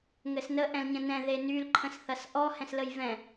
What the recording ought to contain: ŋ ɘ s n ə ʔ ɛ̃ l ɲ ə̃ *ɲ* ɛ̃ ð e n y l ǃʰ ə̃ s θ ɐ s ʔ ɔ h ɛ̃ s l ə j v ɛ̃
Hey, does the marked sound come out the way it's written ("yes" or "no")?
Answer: no